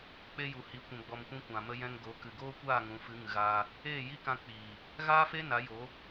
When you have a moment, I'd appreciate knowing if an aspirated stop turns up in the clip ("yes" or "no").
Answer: no